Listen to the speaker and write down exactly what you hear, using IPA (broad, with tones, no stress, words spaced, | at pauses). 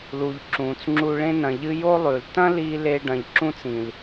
lu˨ʎǁũː˨t͡sŋ͡ǁu˧ ɭẽ˧nɐ̃˨ʎɨ˧ jo˦lˠʉ˨l tɐ̃˦li˧ leː˧ɖɐ̃˨ʎǁũ˦t͡sĩ˨l